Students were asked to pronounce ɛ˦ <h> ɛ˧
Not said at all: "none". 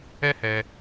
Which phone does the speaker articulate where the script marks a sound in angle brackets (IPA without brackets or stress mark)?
h